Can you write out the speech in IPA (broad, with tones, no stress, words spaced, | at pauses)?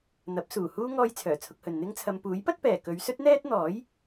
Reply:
n̪ɐ˨˥p̚ suː˨˩huː˥ ŋɔː˥jt͡sʰœː˨˩t͡sʰʊ˧k̚hɵ˨n n̪ɪ˥ŋt͡sʰɐ˨˧m puː˨˥jpɐ˥t̚pɛː˨˩ kɵ˨˧ɥ sɵ˥t̚n̪ɛː˥t̚n̪ɔː˨˥j